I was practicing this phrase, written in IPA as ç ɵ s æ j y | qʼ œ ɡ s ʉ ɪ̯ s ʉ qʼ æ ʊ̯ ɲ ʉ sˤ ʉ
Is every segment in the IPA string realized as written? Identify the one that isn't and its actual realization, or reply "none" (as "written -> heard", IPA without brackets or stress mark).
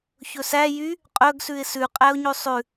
none